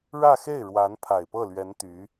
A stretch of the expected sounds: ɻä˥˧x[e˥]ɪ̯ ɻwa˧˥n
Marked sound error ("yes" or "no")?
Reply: yes